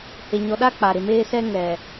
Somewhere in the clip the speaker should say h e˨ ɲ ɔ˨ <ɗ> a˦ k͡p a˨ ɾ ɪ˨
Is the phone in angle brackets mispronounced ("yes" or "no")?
no